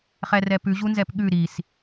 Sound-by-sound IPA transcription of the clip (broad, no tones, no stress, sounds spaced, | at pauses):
χ ɛ r ɛ p ʉ ʑ u n z ɛ p ɠ ʉ ɾ i s